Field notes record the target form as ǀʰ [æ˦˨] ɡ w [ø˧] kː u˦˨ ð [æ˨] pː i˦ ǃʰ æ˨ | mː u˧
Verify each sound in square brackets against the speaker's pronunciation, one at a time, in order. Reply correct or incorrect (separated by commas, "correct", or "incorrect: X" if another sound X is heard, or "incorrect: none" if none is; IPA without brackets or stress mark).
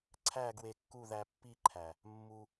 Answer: correct, incorrect: e˧, incorrect: æ˧